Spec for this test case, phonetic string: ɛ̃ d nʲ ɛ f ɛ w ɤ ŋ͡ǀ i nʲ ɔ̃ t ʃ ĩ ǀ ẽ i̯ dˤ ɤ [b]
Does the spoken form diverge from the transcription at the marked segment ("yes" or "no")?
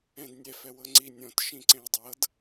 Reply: yes